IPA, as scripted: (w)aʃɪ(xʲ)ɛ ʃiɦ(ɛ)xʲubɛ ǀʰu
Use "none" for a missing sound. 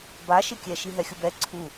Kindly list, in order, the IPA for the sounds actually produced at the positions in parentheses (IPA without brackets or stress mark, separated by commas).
b, kʲ, ɛ